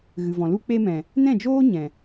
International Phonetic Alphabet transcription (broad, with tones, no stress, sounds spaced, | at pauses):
ɣ ɨ˨ v ɔ̃˨ l u˦ k͡p e˧ m ɛ̃˨ | n ɛ̃˦˨ d͡ʒ oː˦ ɲ ɛ̃˨